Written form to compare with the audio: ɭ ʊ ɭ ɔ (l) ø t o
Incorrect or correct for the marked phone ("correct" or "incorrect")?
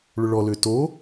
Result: correct